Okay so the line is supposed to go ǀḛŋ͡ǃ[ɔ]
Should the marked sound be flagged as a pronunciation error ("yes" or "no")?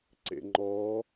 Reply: no